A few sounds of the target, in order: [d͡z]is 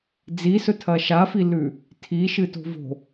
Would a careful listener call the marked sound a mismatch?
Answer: no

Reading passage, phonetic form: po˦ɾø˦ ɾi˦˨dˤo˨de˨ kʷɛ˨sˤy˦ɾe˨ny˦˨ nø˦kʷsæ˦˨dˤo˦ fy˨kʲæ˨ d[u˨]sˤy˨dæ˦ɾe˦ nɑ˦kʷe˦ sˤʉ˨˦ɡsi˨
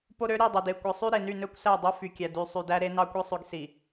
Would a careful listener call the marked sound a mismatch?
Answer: yes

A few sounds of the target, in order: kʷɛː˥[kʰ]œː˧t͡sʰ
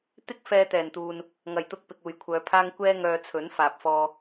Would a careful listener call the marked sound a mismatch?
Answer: yes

